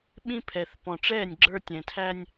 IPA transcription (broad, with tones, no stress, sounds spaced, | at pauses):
ɓ ĩ˦ pʰ ɛ˨ θ p ɔ̃˨ ʈ͡ʂ ɛː˦˨ nʲ ɡ͡ǁ ə˞˦ tʲ ɛ̃˨ tʰ æ˦ nʲ